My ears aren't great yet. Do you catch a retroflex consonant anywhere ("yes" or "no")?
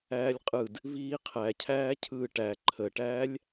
yes